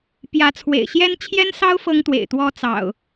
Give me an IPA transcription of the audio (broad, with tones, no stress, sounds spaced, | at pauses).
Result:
p j ä˨˦ t͡sʰ w ḛ˨˩ ɪ̯ ɕ j ɛ˦ n t͡ɕʰ j ɛ˦ n s ɑ˦ ʊ̯ f ɤ˦ ŋ t̪ w ḛ˨˩ ɪ̯ t̪ w ɔ˦ t͡s ɑ̰˨˩ ʊ̯